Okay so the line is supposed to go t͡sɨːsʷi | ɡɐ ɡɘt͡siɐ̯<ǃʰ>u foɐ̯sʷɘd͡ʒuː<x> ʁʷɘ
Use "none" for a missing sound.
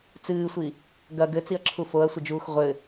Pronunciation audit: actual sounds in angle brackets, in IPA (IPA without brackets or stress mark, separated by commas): ǁʰ, x